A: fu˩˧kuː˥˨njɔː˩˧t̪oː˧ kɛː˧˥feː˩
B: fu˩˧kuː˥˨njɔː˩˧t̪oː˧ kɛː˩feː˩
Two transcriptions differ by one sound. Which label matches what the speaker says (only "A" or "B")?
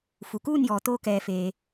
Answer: B